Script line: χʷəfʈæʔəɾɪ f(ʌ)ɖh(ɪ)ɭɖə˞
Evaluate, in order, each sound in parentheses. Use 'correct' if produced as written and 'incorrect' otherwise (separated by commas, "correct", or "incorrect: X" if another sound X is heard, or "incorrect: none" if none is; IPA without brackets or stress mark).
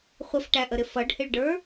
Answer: correct, correct